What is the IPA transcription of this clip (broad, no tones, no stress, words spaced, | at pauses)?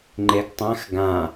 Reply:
ŋ͡ǃeɡtˤãx ɡã